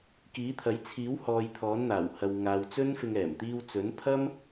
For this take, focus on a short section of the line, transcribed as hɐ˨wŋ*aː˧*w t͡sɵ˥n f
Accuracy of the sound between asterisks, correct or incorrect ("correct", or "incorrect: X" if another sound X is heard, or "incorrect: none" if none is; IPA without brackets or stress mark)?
incorrect: aː˨